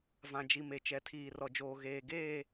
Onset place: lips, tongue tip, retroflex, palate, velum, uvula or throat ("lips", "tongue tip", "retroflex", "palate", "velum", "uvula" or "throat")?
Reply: lips